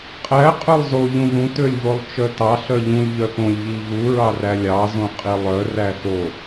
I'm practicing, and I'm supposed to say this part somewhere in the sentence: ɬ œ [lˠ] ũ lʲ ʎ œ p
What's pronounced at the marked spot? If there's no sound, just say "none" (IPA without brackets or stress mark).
ʎ